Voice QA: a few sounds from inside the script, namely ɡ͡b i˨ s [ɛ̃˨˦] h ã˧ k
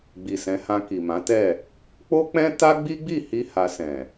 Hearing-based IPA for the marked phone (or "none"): ɛ̃˨˦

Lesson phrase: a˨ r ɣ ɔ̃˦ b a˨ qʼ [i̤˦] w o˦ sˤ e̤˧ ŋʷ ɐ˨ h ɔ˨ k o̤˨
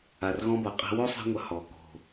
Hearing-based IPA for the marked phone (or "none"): e̤˦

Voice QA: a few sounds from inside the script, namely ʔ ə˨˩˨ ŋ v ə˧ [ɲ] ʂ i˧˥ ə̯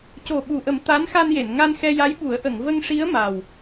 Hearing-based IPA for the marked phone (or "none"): ŋ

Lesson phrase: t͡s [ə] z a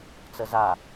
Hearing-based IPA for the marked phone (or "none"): ə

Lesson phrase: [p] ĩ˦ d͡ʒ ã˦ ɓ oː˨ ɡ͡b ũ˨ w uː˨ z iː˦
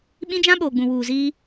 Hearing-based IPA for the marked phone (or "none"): ɓ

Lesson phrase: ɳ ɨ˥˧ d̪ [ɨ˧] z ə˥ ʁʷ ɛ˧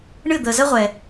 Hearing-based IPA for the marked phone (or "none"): ə˧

